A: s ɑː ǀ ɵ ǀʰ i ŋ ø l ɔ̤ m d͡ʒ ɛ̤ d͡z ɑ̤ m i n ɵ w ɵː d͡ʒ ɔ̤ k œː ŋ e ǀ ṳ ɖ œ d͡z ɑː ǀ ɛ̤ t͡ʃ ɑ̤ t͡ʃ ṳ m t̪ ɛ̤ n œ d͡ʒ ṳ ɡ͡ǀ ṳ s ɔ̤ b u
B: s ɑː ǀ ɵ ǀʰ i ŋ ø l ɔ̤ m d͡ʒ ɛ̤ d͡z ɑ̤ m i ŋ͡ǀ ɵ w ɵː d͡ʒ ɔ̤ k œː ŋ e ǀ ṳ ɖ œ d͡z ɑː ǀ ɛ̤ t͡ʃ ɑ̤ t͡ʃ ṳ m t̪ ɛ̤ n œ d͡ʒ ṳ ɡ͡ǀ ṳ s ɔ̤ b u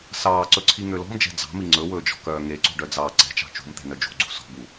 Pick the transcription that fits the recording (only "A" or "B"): B